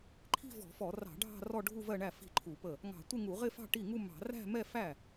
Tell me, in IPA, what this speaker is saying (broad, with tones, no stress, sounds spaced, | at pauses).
ǃʰ i̤˥˧ v ɔ̤˧˩˧ f ɔ˧˩˧ r ɑ̤˧˩˧ ɖʱ ɑ̤˥˧ r ɔ˥˧ ɖʱ u˥˧ v ɜ˥˧ ɳ æ˥˩ f i̤˥˩ ǃʰ u˧˩˧ p ə˥˩ | ŋ ɑ̤˧˩˧ tʷ ɪ˥˧ ŋ u˧˩˧ ʁ ɪ˥˧ f ɑ̤˥˧ ʈ i˥˩ ŋ u˥˧ m ɑ̤˧˩˧ r æ̤˥˧ m ɛ˥˧ f æ˥˩